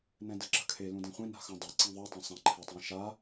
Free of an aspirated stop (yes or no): no